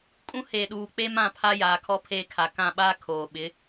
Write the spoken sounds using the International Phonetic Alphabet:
kʼũ˦ he˨ɗuː˨ k͡pe˦mã˦˨ pʰa˦jaː˨kʰɔ˦ pʰeː˦˨kʰa˨ kã˦˨ɓaː˦ kʰoː˨ɓɪ˨˦

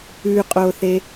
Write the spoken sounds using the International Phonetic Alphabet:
ʉqʼoθe

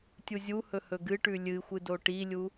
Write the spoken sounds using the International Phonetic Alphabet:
tʲuzʲuhɵ hɵɡɨʈʉ lʲɨxʷɨ doʈilʲu

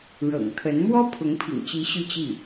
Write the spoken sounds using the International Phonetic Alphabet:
ɻɤ̰˨˩ŋt̪ʰə˧˥n mwɔ˥pʰʊ˧˥ŋpʰḭ˨˩ŋt͡ɕi˧˥ ɕy˥˧t͡ɕi˥˩

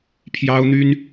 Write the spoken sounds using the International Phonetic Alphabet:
pʰjɑ˦ʊ̯n̪y˦n

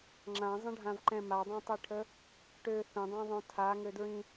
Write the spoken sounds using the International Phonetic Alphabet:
ŋ͡ǁãzˤə̃ɖʱãvǃɛ̃ madˤɛ̃tˤiʈʰə | ʈø θə̃dˤãðˤõ tʰaŋødɹĩ

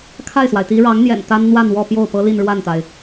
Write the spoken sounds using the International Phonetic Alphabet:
kʰa˥˩ɪ̯swa˩ɪ̯t̪i˧˥ ɻɑ˧˥ŋn̪jɛ̰˨˩n t̪a˥n n̪wa˥˧nwɔ˥˧ pjo˥˩ʊ̯pɤ˥ li˥˧nɻwa˥˩nt̪a˩ɪ̯

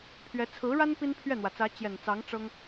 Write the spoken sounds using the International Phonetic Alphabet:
pʰɥɛ˧˥ t͡sʰɹ̩˧˥ɻa˥n pi˥npʰɥɛ˥˩n̪wä˩t͡sä˧˥ t͡ɕjɛ˨˩nt͡sɑ˧˥ŋ ʈ͡ʂɤ˥ŋ

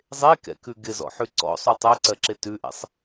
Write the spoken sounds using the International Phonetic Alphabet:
zˤekɛ̰kʉ ɡɪzɔ̰ħʉ ǀɔ̰sˤu tˤɛǀɜǁe tʉʔɛ̰sˤ

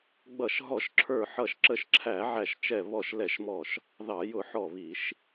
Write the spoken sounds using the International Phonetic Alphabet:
ɡ͡bʌ˧˩˧ʃɦɔ˧˩˧ʃǁʰə˞˧˩ħʌ˧˩ʃ ǁə˧˩ʃǁʰæ˧˩˧ʕæ˧˩ʃt͡ʃɛ˧˩ βɔ˧˩ʃ lɛ˧˩˧ʃmɔ˧˩ʃ | ðɑ˧˩˧ jʊ˧˩˧ ħɔ˧˩βi˧˩˧ʃ

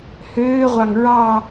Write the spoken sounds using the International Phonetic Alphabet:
høːʁʷɑŋ ɹɑ

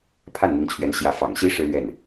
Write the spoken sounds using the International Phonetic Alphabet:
pʰa˥˩nn̪i˧˥ŋt͡ɕʰɥɛ˧˥n ɕjä˧˥fɑ̰˨˩ŋ ɕi˧˥ ʂɻ̩˥lɥɛ˥˩n

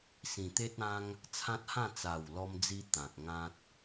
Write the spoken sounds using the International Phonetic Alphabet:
sĩ˨˩t̪e˦t̚ã˦ŋ | t͡sʰã˦t̚hã˥˧ t͡sa˨˩wlɔ˧md͡zi˧ t̪ã˨k̚ŋã˦t̚

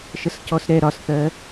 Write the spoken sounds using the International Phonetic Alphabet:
ʃəscɔsɾɛ ɾɒsθɜ

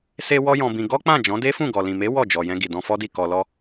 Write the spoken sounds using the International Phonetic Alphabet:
se˧ wɔ˦jɔ̃˧bĩ˧ ɡɔ˦k͡pã˦˨ d͡ʒɔ̃˨˦de˦fũ˦˨ɡɔ˨ lĩ˨me˨˦ wɔ˦˨d͡ʒɔ˨jɛ̃˧ ɡi˨dɔ̃˧fɔ˦di˦˨ kɔ˨lɔ˧

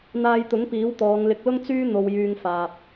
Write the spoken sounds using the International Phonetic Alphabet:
n̪aː˧jt̪ʊ˨˥ŋ piː˨˥wt̪ɔː˨˧ŋlɪ˧k̚lʊ˥ŋ t͡syː˥ n̪o˧wjyː˧ŋ faː˧p̚

